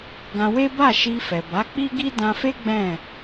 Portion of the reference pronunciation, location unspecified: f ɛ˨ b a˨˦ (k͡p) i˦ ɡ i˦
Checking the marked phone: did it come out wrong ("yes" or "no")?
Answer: no